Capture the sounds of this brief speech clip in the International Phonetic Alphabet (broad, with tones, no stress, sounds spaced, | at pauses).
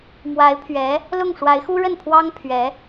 m w a˧˥ ɪ̯ pʰ ɥ ɛ˧˥ | l ʊ˥˩ ŋ ʂ w a˧˥ ɪ̯ x u˥ ɻ ə˥˩ n pʰ w ɑ˥ ŋ pʰ ɥ ɛ˧˥